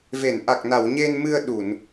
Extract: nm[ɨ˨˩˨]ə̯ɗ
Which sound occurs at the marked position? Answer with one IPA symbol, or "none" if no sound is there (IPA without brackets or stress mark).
ɨ˧